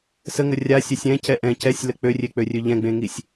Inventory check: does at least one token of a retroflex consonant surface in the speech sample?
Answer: no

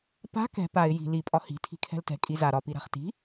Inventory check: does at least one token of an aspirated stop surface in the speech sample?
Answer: yes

